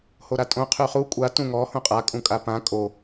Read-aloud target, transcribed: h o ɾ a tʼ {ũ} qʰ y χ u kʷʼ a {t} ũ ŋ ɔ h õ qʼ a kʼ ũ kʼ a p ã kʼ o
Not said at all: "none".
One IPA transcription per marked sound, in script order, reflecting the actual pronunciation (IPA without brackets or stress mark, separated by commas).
õ, t